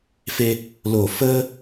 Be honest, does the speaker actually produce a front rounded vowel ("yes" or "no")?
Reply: no